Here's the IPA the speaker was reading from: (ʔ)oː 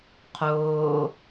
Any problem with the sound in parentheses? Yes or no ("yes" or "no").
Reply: yes